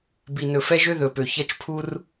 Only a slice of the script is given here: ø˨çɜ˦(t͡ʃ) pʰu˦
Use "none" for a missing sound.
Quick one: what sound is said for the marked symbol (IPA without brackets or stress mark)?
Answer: t͡ʃ